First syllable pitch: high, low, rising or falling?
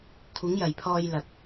rising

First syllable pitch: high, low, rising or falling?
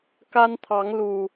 high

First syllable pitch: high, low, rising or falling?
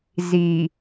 low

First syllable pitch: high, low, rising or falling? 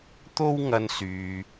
high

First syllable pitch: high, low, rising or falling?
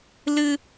high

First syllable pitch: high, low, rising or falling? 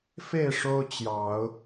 falling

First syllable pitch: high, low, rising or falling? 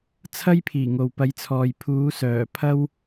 high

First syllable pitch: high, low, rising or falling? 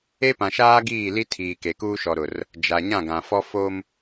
high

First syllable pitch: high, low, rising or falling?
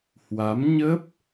rising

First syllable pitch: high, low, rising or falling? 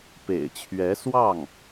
low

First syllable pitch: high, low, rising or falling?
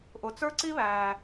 low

